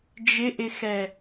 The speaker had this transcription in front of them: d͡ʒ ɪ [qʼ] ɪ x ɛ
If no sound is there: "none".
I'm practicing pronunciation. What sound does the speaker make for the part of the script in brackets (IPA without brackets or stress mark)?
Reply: ʔ